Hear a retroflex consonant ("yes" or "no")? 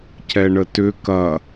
yes